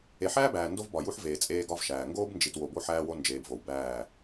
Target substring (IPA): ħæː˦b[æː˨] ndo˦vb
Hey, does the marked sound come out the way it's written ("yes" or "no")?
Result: yes